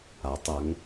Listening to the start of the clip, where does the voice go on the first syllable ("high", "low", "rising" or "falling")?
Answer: rising